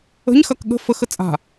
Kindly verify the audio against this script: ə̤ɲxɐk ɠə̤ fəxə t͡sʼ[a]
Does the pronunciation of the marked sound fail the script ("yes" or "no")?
yes